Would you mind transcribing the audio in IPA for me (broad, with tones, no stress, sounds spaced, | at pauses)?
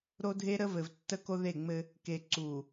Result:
ɾ o˦ dʱ e˦ ɾ ə˦ v ɘ˨ v tː ə˦ k o˦ ð e˦˨ ŋ͡m ɘ˦ | k e˨ ǀ u˨